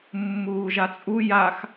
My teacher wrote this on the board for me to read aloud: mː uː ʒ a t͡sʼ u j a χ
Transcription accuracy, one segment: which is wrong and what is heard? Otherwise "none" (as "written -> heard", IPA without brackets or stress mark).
χ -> x